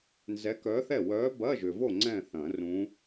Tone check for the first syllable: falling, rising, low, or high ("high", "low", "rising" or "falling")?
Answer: rising